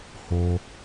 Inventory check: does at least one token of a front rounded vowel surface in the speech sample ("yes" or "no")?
no